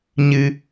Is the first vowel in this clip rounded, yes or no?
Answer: no